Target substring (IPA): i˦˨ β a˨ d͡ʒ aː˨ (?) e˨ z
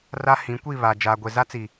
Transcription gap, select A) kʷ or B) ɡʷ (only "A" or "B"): B